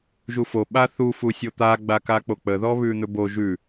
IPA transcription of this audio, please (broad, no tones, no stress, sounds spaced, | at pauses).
ʒ u f o ɓ a θ u f u sʲ o t̪ a ɡ͡b a k a k͡p o k͡p ə ð ɔ β ʉ n̪ ɵ b o ʒ ʉ